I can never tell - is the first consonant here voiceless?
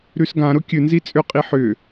no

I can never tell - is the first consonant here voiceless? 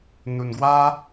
no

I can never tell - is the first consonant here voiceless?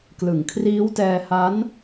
yes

